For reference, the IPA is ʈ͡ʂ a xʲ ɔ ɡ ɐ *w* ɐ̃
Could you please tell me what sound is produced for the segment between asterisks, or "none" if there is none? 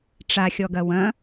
w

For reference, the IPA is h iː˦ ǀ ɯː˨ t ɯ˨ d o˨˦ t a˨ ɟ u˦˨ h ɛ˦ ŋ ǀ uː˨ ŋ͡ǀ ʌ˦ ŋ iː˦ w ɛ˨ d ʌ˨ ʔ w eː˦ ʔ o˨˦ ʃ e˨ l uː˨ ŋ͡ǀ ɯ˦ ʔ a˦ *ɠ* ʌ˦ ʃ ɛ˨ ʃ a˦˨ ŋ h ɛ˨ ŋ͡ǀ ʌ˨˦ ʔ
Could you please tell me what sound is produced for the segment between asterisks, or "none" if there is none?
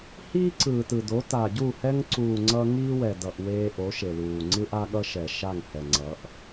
ɠ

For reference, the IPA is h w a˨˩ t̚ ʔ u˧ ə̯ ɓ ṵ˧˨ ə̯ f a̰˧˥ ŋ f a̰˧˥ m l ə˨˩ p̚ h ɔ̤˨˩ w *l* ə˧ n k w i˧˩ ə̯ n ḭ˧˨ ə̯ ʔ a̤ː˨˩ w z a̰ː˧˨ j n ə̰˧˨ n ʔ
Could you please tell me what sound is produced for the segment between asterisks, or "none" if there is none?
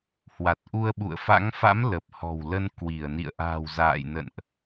l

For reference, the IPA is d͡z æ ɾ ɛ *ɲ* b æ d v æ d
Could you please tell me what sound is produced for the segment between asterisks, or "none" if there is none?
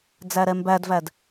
m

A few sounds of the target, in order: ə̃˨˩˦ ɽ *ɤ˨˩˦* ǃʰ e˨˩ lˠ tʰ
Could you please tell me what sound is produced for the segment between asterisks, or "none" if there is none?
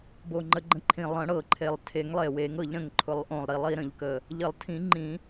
ɤ˨˩˦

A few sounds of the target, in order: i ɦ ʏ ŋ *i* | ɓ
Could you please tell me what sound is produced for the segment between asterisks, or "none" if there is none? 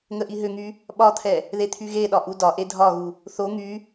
y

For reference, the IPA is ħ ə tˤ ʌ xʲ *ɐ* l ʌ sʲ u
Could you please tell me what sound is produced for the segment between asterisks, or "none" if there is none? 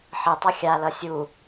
a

